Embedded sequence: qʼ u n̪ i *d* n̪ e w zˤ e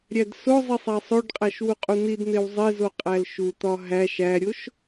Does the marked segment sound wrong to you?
no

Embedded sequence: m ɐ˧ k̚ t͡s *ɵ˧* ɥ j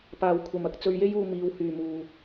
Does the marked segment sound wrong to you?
no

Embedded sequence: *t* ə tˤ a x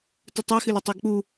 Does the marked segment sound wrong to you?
no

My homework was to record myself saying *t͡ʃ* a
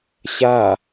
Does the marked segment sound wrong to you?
yes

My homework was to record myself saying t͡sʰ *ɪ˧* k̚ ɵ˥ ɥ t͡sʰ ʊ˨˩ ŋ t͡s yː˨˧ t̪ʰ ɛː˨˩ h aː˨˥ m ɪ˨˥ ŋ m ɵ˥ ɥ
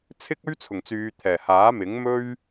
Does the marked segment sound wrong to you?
yes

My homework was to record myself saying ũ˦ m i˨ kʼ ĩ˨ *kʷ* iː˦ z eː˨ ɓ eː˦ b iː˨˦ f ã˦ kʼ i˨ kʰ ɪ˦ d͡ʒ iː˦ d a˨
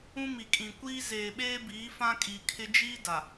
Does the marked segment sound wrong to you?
no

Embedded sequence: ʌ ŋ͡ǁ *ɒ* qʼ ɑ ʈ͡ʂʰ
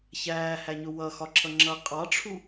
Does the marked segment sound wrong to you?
yes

